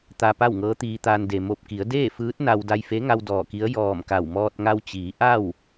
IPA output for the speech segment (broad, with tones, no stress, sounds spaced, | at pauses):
t̪ a˧ p a˥˨ w ŋ ɤː˧˥ t̪ iː˧ t̪ aː˧ n d e˩ m o˧˩ p̚ k i˩˧ ə̯ d eː˥˨ f ɯː˧˥ t̚ n a˧ w d a˧ j f e˧˥ ŋ a˧ w d ɔː˧˩ k i˧˥ ə̯ j ɔː˧˩ m k a˧˩ w m ɔː˧ t̚ ŋ a˧ w t͡ɕ iː˩˧ ʔ a˥˨ w